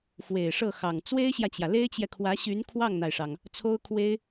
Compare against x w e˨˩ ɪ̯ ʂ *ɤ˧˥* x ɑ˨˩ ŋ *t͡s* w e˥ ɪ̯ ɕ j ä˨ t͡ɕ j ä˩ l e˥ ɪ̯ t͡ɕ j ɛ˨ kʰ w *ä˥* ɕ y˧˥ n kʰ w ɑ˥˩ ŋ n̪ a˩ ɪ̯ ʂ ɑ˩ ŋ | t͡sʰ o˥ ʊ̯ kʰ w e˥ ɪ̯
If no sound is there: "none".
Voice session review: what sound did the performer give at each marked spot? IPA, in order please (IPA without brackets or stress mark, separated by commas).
ɤ˥˩, t͡s, ä˧˥